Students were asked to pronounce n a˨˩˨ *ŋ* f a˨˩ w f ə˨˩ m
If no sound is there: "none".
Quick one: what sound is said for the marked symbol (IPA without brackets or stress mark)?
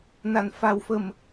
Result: n